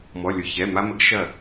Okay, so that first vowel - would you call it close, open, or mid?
mid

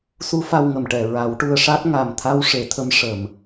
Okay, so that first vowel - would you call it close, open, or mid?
close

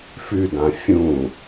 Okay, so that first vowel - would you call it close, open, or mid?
close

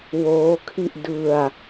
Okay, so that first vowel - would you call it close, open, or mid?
mid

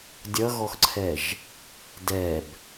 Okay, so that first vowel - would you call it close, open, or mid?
mid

